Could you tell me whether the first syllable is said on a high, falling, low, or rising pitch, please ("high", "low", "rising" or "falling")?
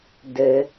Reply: low